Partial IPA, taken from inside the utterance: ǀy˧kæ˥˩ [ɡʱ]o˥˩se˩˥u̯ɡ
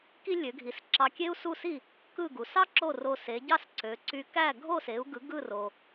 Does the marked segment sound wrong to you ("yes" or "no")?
no